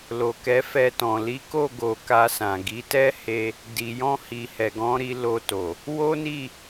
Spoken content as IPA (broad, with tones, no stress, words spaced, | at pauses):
lo˨kɛ˨˦fɛ˧tɔ̃˨ li˨˦ko˦˨ɡo˨ ka˧sã˨ ɡi˨˦tɛ˦he˧ | di˨jɔ̃˧hi˨ hɛ˨ɡɔ̃˨˦ɾi˧ lo˧to˨ | wo˦ni˦˨